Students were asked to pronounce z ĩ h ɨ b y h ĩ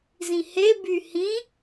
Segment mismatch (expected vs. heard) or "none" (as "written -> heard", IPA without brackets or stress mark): ɨ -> e